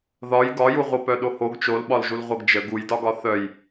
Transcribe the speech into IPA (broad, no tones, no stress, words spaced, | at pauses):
ðɒj ɡɒjuʁʷʌpœ ɗohoɡ t͡ʃolɓɒlʒul ʁʷʌɡd͡ʒə ɡujdɒɡɒ θœj